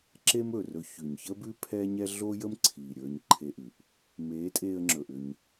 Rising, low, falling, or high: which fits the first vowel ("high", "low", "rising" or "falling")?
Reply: high